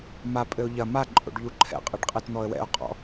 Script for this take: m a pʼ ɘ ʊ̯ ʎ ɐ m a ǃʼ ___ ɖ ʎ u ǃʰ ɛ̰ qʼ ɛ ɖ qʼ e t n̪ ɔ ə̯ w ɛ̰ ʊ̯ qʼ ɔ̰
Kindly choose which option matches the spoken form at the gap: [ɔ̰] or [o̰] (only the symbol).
o̰